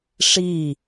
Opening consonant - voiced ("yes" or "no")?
no